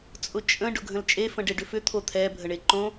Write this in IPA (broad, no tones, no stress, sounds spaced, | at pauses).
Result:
t͡sʼ ʊ t͡ʃʼ ə̃ ɖ ʊ ɡʱ ə̃ l t͡ʃʼ e f ə̃ ɖ e ɖ ʏ f ʏ t̪ʰ o t̪ʰ ɛ bʱ ə ɳ e ǃ õ